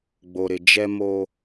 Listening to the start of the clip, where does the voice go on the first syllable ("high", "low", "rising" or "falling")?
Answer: low